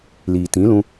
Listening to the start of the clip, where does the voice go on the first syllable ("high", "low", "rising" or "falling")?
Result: low